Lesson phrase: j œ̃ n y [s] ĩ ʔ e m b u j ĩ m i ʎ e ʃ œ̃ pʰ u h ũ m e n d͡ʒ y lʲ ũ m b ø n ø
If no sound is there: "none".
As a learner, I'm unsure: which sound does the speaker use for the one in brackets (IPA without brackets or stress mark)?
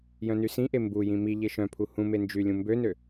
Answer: s